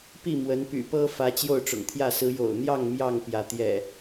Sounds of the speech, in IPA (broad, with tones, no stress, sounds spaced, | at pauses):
p i˥˨ m w ə˨˦ n p y̰˨˩ p ɤ˦ f ä˨˦ t͡ɕ j o˥˨ ʊ̯ ʈ͡ʂ ʊ̰˨˩ ŋ t̪ʰ j ä˥˨ s ɹ̩˨˦ j o̰˨˩ ʊ̯ n̪ j ɑ˥˨ ŋ m j ɑ˥˨ ŋ p j ä˩ t̪ j ɛ̰˨˩